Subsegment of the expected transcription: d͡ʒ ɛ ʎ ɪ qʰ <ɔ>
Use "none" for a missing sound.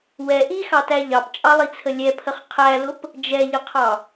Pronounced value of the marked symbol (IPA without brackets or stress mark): ɑ